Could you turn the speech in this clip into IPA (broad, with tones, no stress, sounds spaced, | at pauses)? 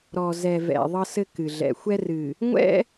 ɾ ɔ˨ z ɛ˨ v ɛ̰˨ ðˤ ɤ˦ s ɘ˦ k ɨ˨ ɮ ɛ̰˨ xʷ ɛ˦ r ɨ˨ | ŋʷ ɛ̰˦